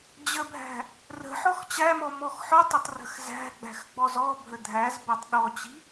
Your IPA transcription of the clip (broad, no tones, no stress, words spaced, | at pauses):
d͡ʑəbʱæ̤ | rə̤ħɔx t͡ɕæmɔ mɔxħɔtˤətˤ rə̤xzæ̤ɡ͡bæ̤x ɡ͡bɔzɔbʱə dʱæz bætˤɗɔt͡ɕi̤